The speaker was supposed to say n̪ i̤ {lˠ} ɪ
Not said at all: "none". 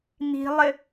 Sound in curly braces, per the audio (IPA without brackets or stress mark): lˠ